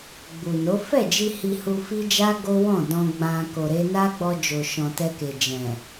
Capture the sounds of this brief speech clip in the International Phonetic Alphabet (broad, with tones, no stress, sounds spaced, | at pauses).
ɡ͡b u˨ n o˨˦ f ɛ˦˨ d͡ʒ i˧ h i˧ h u˧ f i˦ d͡ʒ a˦ ɡ o˦ w ɔ̃˦˨ d ɔ̃˧ ɡ͡b ã˧ k o˨ ɾ e˧ n a˦ ɡ͡b ɔ˧ d͡ʒ o˨ ʃ ɔ̃˨ t ɛ˧ k e˨ d͡ʒ ɛ̃˨